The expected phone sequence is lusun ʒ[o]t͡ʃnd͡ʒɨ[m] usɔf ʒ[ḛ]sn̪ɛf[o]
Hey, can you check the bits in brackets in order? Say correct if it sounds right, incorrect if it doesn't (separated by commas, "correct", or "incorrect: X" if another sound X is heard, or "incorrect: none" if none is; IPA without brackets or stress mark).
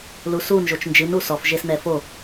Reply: correct, incorrect: n, incorrect: e, correct